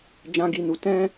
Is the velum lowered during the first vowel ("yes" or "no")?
yes